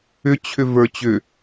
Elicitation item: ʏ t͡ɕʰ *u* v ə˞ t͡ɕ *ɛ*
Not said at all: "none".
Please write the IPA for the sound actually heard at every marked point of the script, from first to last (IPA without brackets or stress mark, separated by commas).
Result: ʏ, ʏ